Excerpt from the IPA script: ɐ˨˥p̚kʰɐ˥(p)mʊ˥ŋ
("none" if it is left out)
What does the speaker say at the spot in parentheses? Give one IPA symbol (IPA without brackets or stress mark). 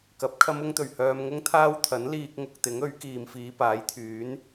none